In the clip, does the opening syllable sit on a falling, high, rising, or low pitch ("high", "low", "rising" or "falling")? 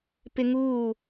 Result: high